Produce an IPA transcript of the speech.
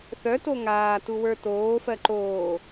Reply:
θ œ t o ŋ aː t u w ə˞ t oː f ɜ ǃ oː

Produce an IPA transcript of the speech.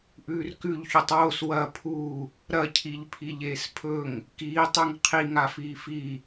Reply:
ʔ ʉː r k ʉ ʎ ç ʉ tˤ w o s w ɐ pʰ u | ɾ ɐ cʰ i ʎ pʰ i ʎ eː s pʰ ɵ ŋ | k iː tˤ ʉ ŋ qʰ i ŋ a f iː f i

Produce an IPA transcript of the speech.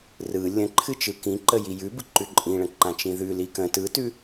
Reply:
r ɯ lʲ ə̃ ǃʰ ɨ t͡ʃ ɯ k ĩ ǃ ə j i j ʉ b ɯ ǃ ʉ ǃʼ ĩ ɭ ə̃ ǃ ã t͡ʃ ĩ ð ʉ l i k ə̃ t ɯ t ʉ

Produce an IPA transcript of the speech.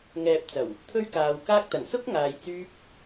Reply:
ŋ ɛː˨ p̚ t͡s ɐ˨˩ w | t̪ʰ ɵ˥ ɥ k aː˨˧ w k aː˥ k̚ t̪ ɐ˨˩ n s ʊ˥ k̚ ŋ aː˧ j t͡s yː˥ p̚

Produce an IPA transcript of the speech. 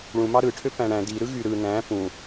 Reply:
ɭ ũ m ɑ ɾ ɯ ʈʰ ø p æ̃ ɽ æ̃ d i ɾ ɯ ɣ y ɾ ɯ n æ̃ p ũ

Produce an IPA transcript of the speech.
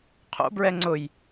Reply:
qʰ o̰ b ɹ ɛ ŋ͡ǀ ʊ j

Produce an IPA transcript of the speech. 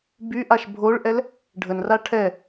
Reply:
b y ʔ a ʃ bʱ o ɭ ʔ ɛ l | ɖʱ ə n r a ʈʰ ɛ

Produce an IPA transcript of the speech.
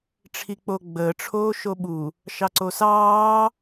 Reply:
ʈ͡ʂʰ i k͡p o ɡ͡b əː ʈ͡ʂʰ oː ʃ o ɓ u | ʃ ɑ ǀ o s ɑː

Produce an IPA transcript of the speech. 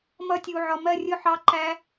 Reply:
m ʌ˧ tʲ u˨ ʕ ɒ˨ m ɜ˦˨ rʲ ʊ˦˨ ħ ɑ˧ ǃ æ˧

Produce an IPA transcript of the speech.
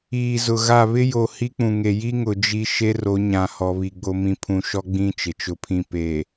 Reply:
iː˨ z ʊ˨ ɣ a˦˨ β ɪ˦ j o˨ h i˦ k͡p ũ˨ ŋ e˨ j i˦ ŋ ʊ˨ d͡ʒ i˦ ʃ e˦ r o˨˦ ɲ ã˨ h ɔ˨ β i˨ ɡ͡b o˦ m ĩ˦ pʰ ũ˨ ʃ ɔ˦ ɡ͡b ĩ˦˨ t͡ʃ ɪ˨ t͡ʃ ʊ˦ pʰ ĩ˦ p e˨

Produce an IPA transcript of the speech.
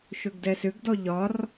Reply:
ʃ ɵ ɡ d ɛ s ʏ ɡ d ɔ ʎ ɒ r

